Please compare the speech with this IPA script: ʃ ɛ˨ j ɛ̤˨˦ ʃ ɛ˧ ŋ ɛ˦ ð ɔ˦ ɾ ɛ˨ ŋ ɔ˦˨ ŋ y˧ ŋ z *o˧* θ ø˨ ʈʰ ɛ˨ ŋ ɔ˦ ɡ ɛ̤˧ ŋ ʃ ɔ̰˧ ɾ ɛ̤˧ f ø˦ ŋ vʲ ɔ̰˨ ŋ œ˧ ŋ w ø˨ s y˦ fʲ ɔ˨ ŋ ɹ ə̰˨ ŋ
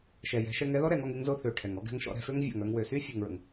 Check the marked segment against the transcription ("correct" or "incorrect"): correct